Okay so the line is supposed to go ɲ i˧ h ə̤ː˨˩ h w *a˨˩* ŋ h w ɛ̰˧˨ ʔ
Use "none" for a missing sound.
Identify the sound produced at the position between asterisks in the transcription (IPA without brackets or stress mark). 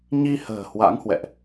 a̰˧˥